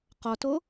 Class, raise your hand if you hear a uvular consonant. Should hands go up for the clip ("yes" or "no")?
yes